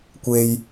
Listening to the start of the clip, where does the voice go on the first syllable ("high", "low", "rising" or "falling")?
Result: low